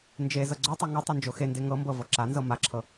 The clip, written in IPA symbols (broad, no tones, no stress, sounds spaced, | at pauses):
n d͡ʒ e z ɤ ɡ͡ǀ o tˤ ɤ ŋ u tˤ u n d͡ʒ o x e n d e ŋ ɤ m b ɤ v ɤ ǁ a n z ɤ m a ǁʰ ɤ